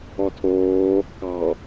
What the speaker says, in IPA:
ɔ tʰ oː | k ɑ

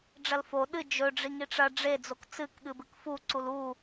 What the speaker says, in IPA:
ɖ͡ʐ ɐ l f o ɗ ɨ d͡ʒ ɵ ɖ͡ʐ i ŋ i ʈ͡ʂ ɐ ɖ͡ʐ e d͡z o k t͡s ɨ k ɠ ɨ b ɨ k f u ǀ u l u

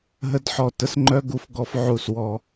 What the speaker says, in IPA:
ɦ ə˦ d ħ ɔ˦˨ t ə˧ s ŋ͡ǃ œ˦ ɡ u˦ f ɡ ɔ˦ f ʕ u˧ s w ɔ˧

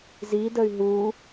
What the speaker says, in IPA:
z i d ə y̯ ɦ u

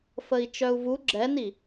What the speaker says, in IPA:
f ə i̯ t͡ʃ œ u̯ v u ɡ͡ǁ ɛ n i

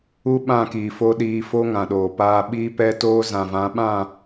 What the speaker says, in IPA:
u˦ ɓ ã˦˨ k iː˨ f o˦ ɗ iː˧ f o˦ ŋ ã˨ ɗ oː˨ p aː˧ ɓ iː˦ p ɛ˦ t oː˦ z ã˨ v ã˨˦ ɓ ã˦˨

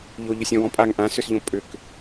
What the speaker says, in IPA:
ʎ o ʎ ʏ sʲ ɔ̃ w ɔ̃ pʼ a ŋ ʔ ã s ʏ s ʎ õ pʼ ʏ k

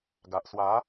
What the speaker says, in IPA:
ɡ a˨ ʔ s w a˨˦

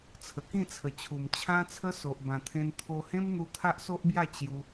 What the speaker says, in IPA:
t͡sʰ ə˨˩ k ĩ˥˧ t͡sʰ ə˨˩ t͡ɕʰ u˨˩ m t͡ɕʰ ã˦ t͡sʰ ə˦ s o˨ ʔ b ã˨˩ t̪ʰ ẽ˧ n t̪ʰ o˧ h ẽ˦ m n̪ u˧ t̪ʰ a˦ ʔ s o˦ ʔ b j a˥˧ t͡ɕ j u˧

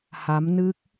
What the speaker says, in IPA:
h a˨˦ m n ɨ˦˥ k̚

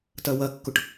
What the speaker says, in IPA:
t ɐ w ɐ kː ʊ ʈ

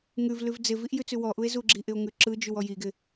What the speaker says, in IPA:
ŋ ʉ v l ʉ v d͡z ɪ v i ʔ j ʉ t͡s ʉ w ɔ ʔ u e̯ z u ɡ͡ǁ i ʔ ɪ o̯ ŋ ʉ ǁ ɯ d͡ʒ ʉ w ɔ j i ɡ ɪ

